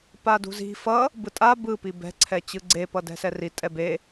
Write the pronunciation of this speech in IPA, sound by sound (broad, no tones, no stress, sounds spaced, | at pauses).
p a d ṳ z i̤ f ʌ | b ɯ tʼ a b ɯ p i b ɛ̤ ǀʰ ɛ t͡ɕ ɯ ɡ͡ǀ e p ʌ d ɛ̤ s ɛ r i tʼ ɛ b e